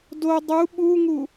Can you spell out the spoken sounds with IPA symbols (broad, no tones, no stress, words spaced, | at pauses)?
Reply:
do dˤu ɓuŋu